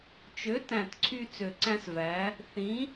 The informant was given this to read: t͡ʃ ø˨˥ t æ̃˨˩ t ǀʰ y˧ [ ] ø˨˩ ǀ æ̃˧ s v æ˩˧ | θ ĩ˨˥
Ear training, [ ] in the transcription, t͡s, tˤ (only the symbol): t͡s